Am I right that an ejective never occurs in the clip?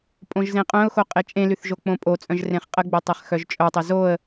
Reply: no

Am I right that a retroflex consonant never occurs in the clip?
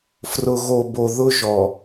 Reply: yes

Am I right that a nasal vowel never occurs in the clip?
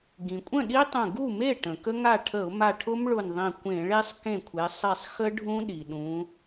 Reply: no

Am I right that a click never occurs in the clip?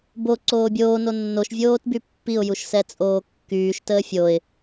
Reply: no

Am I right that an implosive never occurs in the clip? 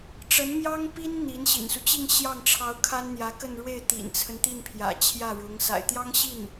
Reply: yes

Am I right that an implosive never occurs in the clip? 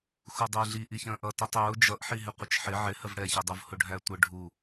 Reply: yes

